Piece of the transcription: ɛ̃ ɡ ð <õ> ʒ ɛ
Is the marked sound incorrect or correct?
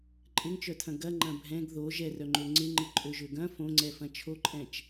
incorrect: o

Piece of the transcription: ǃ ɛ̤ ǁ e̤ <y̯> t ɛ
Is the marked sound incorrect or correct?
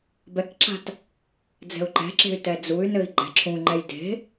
correct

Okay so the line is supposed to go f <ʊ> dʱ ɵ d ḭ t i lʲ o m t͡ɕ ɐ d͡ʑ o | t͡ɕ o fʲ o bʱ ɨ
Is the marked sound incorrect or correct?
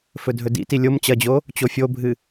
incorrect: ɵ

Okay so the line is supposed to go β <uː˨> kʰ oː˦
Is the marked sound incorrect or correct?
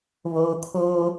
incorrect: oː˨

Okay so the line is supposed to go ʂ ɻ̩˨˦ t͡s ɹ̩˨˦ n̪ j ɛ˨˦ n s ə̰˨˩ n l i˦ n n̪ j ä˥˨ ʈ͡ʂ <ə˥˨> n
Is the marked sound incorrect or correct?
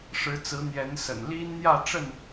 correct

